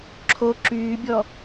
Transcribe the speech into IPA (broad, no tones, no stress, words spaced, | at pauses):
ǁʰo ǁyːbʲɔ